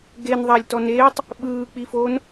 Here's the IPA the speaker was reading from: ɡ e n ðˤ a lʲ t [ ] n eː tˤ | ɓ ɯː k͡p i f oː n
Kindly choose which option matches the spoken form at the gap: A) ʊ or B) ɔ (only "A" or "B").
B